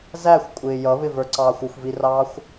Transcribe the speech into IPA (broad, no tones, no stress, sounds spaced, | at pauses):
z æ xʷ kʷʼ ɪː j ʌ β ɪ v ə˞ ǀ ɑː xʷ ʊ xʷ v i r ɑː xʷ